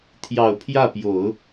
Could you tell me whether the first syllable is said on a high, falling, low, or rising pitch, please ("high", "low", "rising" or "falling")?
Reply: low